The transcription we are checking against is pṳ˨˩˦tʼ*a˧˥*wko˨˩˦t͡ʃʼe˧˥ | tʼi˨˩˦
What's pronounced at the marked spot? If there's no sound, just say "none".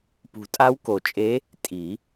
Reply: a˧˥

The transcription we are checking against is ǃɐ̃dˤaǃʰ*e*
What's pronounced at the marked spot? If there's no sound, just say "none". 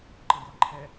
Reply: ɛ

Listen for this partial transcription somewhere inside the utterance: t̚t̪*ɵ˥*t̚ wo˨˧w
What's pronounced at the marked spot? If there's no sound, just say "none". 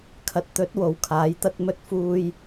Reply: ɵ˨˥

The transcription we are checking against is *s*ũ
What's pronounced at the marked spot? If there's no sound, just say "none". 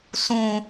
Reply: s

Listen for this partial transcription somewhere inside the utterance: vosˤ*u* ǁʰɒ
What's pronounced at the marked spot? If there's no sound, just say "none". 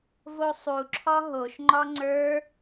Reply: u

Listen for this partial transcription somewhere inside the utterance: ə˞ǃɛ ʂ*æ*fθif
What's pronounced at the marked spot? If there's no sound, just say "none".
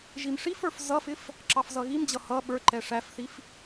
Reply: æ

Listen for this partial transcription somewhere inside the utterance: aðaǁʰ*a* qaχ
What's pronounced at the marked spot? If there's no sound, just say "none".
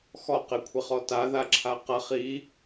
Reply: a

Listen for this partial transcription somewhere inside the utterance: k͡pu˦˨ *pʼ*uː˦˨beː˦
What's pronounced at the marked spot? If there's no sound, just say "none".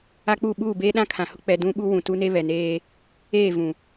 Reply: ɓ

